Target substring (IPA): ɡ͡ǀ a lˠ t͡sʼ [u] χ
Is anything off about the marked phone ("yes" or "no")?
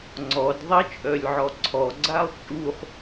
no